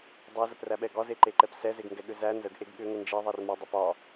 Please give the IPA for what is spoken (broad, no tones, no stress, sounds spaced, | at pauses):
dˤ ɛ z ə p r æ ɓ ɛ ɡ ɒ z e ǃ e ǃ ɛ p s ɛ z e ɡ ŋ ɡ ɛ ɠ ʏ z æ n z ə ɡ ʔ e ɡ ɠ ʏ ŋ ə n d͡ʒ e ðˤ ɛ r m ɒ dˤ ə p ɒ